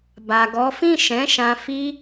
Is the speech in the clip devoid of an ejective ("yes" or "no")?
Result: yes